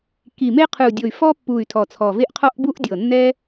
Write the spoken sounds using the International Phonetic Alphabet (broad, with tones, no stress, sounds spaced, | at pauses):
k i˨˩ m e˦ qʰ ɯ˨˩ u̯ dʲ o˨˩ y̯ f ɔ˦ pː u˨˩ y̯ tʰ ɔ˨˩ t͡sʰ ɔ˨˩ v e˦ ʔ qʰ ɔ˦ ʔ b u˦ ʔ dʲ ɤ˨˩ nː ɛ˦